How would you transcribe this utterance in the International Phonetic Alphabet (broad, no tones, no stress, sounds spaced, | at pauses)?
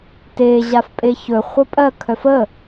t e ʑ a f pʼ e ç ɵ χʷ ə pʼ ɜ kʰ œ f ə